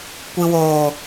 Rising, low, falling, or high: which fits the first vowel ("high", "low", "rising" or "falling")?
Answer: low